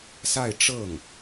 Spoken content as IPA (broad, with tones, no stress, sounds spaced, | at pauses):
s a˥˧ ɪ̯ ʈ͡ʂ ɤ˥˩ ŋ